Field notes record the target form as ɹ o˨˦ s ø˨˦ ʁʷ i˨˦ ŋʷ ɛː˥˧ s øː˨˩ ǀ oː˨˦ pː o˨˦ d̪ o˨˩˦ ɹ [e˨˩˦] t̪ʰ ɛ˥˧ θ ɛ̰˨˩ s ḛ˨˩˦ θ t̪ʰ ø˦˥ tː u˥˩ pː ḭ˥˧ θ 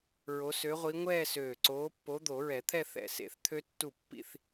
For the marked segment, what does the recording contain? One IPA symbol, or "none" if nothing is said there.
ɛ˨˩˦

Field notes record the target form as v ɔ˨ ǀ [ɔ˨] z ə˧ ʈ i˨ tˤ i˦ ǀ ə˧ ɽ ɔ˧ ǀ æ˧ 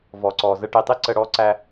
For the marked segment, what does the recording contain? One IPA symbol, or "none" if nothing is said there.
ɔ˨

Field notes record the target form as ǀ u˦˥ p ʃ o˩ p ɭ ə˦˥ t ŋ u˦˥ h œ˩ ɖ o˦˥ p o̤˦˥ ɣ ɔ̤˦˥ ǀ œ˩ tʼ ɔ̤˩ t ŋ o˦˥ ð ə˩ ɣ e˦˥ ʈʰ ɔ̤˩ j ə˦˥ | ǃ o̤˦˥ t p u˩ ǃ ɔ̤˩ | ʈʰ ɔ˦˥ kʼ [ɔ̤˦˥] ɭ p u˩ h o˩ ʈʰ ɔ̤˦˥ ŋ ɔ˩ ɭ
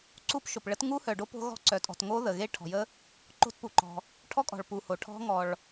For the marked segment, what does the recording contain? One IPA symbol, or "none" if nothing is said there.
ɔ̤˩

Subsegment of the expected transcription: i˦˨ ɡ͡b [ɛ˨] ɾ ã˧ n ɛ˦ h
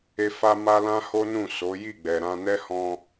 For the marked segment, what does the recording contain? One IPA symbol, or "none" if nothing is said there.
ɛ˨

